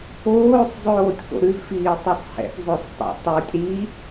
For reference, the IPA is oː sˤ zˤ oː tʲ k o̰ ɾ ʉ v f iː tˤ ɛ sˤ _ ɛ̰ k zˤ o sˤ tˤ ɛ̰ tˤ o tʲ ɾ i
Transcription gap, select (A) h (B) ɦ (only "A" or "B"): A